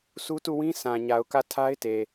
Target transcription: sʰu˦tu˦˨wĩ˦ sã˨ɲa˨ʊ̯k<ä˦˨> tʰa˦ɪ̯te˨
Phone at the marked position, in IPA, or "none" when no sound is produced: ä˦˨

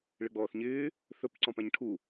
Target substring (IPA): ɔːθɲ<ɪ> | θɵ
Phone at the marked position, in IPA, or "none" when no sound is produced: ɪː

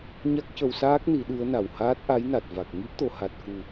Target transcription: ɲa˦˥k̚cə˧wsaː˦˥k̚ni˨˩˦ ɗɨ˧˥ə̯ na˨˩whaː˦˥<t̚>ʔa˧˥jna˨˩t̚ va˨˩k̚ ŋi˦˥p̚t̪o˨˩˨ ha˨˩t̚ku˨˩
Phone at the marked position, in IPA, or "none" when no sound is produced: t̚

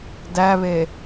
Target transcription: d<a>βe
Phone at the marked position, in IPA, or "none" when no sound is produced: æ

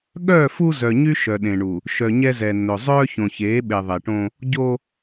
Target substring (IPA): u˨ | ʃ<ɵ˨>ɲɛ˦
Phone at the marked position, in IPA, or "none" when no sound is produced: œ˨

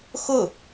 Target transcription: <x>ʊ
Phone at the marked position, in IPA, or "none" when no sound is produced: x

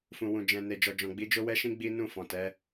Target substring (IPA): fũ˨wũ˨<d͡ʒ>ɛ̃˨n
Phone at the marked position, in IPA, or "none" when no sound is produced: d͡ʒ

